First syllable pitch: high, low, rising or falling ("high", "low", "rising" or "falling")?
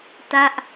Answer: falling